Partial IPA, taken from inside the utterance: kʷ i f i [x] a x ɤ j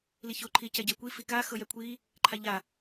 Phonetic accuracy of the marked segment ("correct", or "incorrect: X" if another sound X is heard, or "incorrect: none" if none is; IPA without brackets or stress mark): incorrect: k